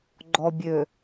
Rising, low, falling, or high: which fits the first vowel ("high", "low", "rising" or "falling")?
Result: low